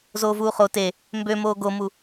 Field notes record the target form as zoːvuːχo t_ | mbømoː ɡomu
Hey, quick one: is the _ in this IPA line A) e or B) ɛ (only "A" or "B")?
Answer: A